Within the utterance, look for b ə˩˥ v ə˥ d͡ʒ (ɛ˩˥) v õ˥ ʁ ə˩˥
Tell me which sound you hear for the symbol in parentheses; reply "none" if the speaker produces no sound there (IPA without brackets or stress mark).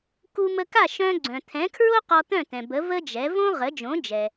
ɛ˩˥